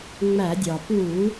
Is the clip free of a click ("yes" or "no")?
yes